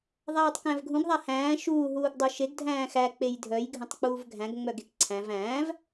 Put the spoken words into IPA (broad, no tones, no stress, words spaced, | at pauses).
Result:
ðˤæːtˤkæ̃vɡʱũɡ ðˤahæ̃ː ʃuː ɦuːɡdˤœʃeɡ dʱæ̃ːxæ k͡pejdʱœj ɡʱə̃tˤk͡puːvɡʱæ̃ɡ ŋ͡mœɡekǀʰæ̃v æ̃ːv